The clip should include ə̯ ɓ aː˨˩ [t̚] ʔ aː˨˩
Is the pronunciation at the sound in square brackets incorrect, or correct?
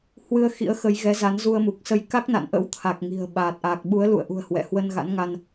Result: correct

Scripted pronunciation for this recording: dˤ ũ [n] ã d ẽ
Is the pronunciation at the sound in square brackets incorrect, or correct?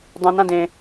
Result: correct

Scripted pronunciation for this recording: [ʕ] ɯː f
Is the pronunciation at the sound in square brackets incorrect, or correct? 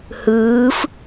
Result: incorrect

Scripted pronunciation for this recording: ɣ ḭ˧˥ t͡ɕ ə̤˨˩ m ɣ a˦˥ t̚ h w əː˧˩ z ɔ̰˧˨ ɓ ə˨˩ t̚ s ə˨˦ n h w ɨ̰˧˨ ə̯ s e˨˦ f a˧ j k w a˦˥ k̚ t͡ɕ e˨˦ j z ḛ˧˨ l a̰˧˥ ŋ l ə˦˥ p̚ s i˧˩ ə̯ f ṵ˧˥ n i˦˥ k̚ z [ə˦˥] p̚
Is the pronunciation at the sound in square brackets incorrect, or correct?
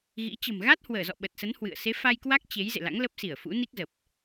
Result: incorrect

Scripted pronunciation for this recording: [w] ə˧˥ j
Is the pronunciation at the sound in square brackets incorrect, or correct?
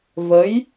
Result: incorrect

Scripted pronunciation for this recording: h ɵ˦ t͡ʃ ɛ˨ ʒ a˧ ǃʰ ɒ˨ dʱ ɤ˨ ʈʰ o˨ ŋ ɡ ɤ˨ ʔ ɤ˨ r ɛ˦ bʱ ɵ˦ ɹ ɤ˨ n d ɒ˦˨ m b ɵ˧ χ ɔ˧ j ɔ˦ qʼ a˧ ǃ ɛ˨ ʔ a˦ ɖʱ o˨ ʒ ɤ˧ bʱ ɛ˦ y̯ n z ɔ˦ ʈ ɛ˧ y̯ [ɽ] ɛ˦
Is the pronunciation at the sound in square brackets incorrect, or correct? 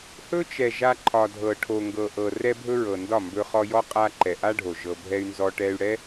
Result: correct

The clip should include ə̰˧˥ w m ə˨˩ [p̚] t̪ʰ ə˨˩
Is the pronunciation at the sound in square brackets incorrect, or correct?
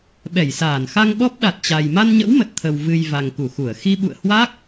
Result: incorrect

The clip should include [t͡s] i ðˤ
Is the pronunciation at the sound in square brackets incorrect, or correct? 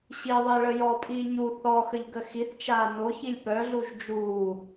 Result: incorrect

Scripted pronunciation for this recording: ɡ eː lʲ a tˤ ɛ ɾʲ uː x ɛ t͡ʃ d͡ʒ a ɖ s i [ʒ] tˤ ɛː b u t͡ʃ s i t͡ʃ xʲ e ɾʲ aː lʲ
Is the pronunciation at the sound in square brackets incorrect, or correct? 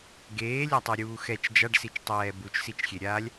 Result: incorrect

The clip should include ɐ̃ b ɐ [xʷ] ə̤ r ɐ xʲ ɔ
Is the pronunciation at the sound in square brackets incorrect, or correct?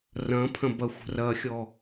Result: correct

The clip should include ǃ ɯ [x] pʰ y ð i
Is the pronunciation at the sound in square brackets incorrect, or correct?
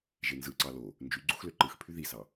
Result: correct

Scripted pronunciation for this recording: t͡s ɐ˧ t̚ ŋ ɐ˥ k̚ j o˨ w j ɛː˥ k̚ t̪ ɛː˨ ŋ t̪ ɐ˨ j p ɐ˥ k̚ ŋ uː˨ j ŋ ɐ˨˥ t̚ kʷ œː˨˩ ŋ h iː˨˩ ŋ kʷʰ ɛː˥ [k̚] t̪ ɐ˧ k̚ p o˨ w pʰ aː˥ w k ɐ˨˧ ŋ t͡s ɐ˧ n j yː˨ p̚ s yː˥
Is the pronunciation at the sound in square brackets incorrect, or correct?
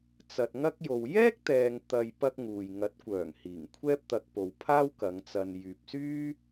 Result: incorrect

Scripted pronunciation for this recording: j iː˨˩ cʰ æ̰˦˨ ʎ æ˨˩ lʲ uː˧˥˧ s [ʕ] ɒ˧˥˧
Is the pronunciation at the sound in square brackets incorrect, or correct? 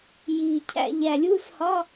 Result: incorrect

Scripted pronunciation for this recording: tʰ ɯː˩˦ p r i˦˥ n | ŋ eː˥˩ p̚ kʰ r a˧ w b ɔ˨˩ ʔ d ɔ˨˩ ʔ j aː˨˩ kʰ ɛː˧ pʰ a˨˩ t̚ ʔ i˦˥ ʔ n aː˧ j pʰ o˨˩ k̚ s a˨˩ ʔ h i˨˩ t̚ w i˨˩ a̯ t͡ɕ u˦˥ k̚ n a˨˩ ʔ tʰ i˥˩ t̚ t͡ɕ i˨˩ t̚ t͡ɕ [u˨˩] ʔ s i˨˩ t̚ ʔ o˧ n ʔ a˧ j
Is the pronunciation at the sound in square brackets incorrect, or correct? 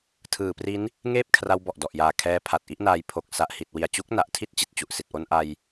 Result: correct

